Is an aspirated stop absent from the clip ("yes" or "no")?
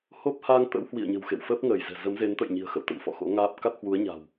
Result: yes